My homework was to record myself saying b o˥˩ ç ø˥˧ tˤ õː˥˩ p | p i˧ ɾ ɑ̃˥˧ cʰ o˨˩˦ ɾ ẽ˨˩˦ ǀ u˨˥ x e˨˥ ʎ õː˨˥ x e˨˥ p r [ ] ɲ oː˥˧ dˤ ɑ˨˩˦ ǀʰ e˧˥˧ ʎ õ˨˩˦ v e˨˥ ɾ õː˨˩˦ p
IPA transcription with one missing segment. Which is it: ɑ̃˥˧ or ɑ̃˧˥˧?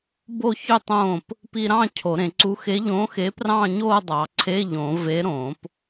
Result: ɑ̃˥˧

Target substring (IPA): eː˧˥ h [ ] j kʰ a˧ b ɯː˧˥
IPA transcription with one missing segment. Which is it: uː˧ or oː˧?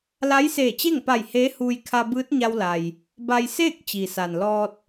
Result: uː˧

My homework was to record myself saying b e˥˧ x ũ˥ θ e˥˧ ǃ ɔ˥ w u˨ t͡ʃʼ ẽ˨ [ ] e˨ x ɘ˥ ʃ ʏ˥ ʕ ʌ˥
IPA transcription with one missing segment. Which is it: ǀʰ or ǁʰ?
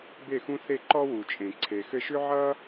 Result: ǀʰ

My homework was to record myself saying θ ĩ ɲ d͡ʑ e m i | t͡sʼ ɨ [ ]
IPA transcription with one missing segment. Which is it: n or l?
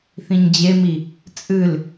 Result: l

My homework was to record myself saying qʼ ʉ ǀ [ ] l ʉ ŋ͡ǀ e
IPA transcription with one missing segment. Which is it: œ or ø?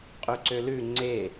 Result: ø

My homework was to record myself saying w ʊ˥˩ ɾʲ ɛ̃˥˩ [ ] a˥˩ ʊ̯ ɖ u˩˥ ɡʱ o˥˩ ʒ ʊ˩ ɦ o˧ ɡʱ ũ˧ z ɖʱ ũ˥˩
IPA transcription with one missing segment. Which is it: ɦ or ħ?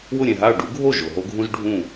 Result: ɦ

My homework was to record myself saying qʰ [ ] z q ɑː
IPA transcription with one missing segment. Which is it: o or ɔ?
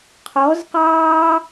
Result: ɔ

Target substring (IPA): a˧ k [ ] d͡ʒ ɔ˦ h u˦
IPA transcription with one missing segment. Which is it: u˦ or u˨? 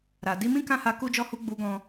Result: u˦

